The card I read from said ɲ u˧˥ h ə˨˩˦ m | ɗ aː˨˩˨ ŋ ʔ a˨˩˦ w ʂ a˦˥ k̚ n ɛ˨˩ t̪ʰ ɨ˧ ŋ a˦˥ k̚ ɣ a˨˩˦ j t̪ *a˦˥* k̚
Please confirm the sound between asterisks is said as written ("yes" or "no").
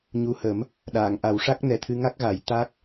yes